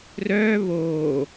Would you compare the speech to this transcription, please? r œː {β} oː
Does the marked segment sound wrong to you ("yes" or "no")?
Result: no